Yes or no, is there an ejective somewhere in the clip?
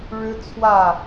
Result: no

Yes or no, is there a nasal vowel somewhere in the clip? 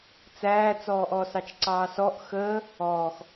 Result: no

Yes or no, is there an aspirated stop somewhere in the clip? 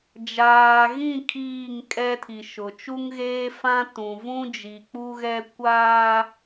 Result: yes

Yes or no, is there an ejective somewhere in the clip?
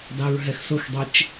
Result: no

